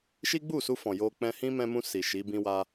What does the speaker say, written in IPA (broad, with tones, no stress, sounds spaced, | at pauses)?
ʃ i˦ ɡ͡b u˦˨ s u˧ f ɔ̃˨ j o˧ k͡p ɛ̃˧ h ĩ˦ m ɛ̃˧ m ũ˧ s i˨ ʃ i˨˦ b ĩ˦ w a˦